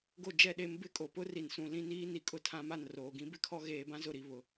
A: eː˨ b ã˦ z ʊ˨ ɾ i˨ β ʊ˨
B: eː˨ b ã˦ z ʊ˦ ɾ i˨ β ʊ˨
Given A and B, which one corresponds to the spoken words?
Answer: A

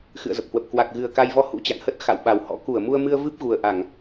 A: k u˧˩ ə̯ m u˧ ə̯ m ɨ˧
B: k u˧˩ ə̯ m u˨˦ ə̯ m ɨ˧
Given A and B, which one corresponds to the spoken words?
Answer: A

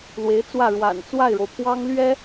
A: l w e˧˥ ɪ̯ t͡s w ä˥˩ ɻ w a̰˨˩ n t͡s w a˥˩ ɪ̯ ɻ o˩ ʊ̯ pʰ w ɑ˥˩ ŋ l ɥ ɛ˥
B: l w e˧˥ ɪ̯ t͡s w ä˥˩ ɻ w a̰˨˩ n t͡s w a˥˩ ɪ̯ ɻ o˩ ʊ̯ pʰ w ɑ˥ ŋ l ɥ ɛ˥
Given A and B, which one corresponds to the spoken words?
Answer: B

